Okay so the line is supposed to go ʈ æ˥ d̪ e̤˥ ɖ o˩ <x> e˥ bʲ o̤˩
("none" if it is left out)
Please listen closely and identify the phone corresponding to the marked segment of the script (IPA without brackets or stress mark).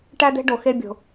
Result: x